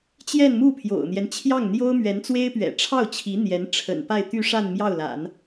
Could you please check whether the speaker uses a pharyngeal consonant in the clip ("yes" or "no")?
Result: no